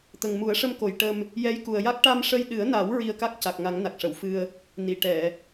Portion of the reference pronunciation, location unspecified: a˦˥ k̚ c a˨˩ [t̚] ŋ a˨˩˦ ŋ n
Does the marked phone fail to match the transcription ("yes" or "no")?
yes